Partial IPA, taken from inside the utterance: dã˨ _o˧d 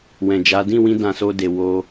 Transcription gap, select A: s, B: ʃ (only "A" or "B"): A